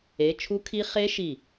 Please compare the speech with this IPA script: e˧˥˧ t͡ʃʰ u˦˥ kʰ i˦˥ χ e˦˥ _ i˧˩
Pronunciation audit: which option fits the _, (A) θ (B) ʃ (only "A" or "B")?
B